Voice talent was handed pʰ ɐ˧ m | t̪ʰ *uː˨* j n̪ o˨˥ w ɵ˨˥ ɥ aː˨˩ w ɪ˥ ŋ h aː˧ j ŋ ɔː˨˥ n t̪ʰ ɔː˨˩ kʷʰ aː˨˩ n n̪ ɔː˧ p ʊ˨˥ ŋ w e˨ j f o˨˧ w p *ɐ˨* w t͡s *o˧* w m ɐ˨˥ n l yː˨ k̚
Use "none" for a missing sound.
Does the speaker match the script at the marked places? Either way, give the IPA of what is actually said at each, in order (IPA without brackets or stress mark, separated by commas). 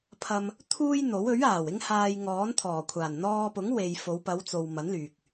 uː˥, ɐ˨˧, o˨